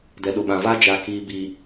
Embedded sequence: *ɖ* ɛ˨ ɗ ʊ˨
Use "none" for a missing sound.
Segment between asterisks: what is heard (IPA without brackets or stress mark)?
d